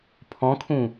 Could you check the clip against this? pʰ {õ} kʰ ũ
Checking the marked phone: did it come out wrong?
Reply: yes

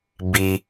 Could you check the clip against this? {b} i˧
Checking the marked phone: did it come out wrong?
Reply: no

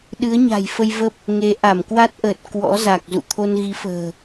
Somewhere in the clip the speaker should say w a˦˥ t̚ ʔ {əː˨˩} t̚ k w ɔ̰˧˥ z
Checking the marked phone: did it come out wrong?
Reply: no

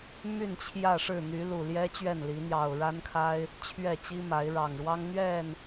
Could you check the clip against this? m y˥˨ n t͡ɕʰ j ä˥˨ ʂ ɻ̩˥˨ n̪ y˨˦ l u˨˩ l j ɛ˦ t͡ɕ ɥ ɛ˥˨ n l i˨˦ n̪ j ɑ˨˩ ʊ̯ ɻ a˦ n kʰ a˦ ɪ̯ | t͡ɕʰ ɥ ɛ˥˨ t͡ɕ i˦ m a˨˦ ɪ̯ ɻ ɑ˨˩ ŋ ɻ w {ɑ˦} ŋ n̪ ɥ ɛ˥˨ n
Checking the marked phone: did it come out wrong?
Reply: no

